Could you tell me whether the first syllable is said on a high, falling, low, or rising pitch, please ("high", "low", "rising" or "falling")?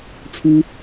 high